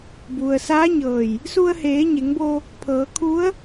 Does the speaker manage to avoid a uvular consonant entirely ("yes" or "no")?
yes